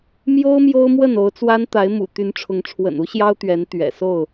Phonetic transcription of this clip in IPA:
m j o˦ ʊ̯ m j o˦ ʊ̯ m w ə˥˨ n o˨˦ ʊ̯ t͡s w a˦ n t̪ a˨˦ ɪ̯ m ṵ˨˩ t̪ y˨˦ n ʈ͡ʂʰ ʊ˨˦ ŋ ʈ͡ʂʰ w ə̰˨˩ n u˦ ɕ j ɑ˦ ʊ̯ t̪ ɥ ɛ˨˦ n t̪ ɥ ɛ̰˨˩ s o˥˨ ʊ̯

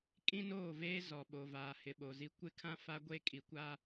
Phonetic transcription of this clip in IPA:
kʼ ĩ˦ n oː˦˨ v eː˦ z ɔ˨ ɓ o˨ v aː˨ h ɪ˨ ɓ o˨ z i˦ kʷ ɪ˦ kʰ ã˦ f a˦ ɡʷ e˦ kʼ i˨ kʷ aː˦

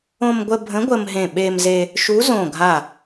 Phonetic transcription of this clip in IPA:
õ˧ m ɡʷ ə˧ bʱ ə̃˨˥ ɡʷ ə˧ m ɦ ẽ˧˩ ɓ e˧ m z e˧ | ʃ u˨˥ z õ˧˩ ɡʱ a˧˩

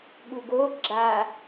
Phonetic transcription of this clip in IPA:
ɠ u ɡ o ɡ͡ǁ a

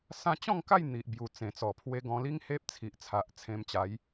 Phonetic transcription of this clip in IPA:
s ã˦ t͡ɕ ɔ̃˥˧ ŋ k a˥˧ j n̪ i˨ ʔ b j u˨˩ t͡s ẽ˨˩ t͡s ɔ˨˩ pʰ w e˧ ɡ ɔ̃˧ l i˦ ŋ h e˦ p̚ t͡sʰ i˨ ʔ t͡sʰ a˨ ʔ t͡sʰ ẽ˧ m t͡ɕ a˨˦ j

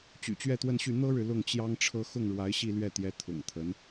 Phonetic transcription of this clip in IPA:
t͡ɕ y̰˨˩ t͡ɕ ɥ ɛ˥˧ t̪ w ə˥˧ n ɕ y˥˩ n̪ ɤ˥ ɻ ɻ̩˨ l ʊ˥˩ ŋ t͡ɕ j ɑ˥ ŋ ʈ͡ʂʰ ɤ˥ x ʊ˥˩ ŋ ɻ w a˧˥ ɪ̯ ɕ i˥˧ l ɥ ɛ˥˩ t̪ j ɛ˧˥ t̪ʰ ʊ̰˨˩ ŋ t̪ʰ ə˧˥ n

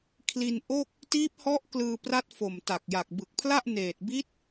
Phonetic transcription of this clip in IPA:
kʰ l i˧ n ʔ o˥˩ k̚ | t iː˦˥ p̚ h ɔ˦˥ ʔ k l ɯː˧ p r a˦˥ t̚ f o˨˩ m t a˨˩ k̚ j a˨˩ k̚ b ɯ˨˩ k̚ pʰ l a˥˩ ʔ n eː˨˩ t̚ b i˦˥ t̚

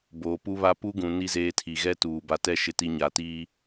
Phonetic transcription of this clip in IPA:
b oː˨ p u˦ β a˦ p u˦ ɡ ũ˨ n i˦ z eː˦ tʰ i˨ ɣ ɛ˦ t uː˨ b a˨ t ɛ˦ ʃ ɪ˨ t i˨ ɲ a˨ t iː˦

